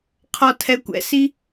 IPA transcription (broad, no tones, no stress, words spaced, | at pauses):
qʰɔtʰɛkʷɛ̰si